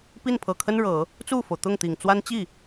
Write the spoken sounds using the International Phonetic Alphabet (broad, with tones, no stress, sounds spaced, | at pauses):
p i˥˩ n pʰ ɤ˨˩ kʰ ə˥ n ɻ ɤ˨˩˦ | t͡s u˥˩ f o˩ ʊ̯ t̪ ʊ˥˩ ŋ t̪ i˨˩ ŋ t͡s w a˥ n t͡ɕ i˥˩